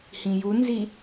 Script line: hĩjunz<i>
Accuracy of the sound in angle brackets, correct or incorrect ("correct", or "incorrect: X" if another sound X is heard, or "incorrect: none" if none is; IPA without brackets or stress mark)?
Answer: correct